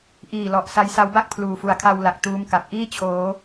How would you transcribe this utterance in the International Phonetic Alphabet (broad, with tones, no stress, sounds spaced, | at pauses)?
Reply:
ʔ iː˨˩ l ɔ˨˩ ʔ s a˧ j s a˦˥ w b a˥˩ k̚ pʰ l uː˨˩ f u˨˩ a̯ kʰ a˧ w l a˨˩ k̚ t uː˦˥ m k a˨˩ p̚ ʔ iː˥˩ t͡ɕʰ oː˦˥